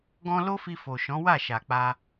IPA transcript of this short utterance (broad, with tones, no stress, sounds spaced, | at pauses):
ɡ ɔ̃˦ l o˦ f i˧ f o˨ ʃ ɔ̃˨˦ w a˦˨ ʃ a˨ k͡p a˧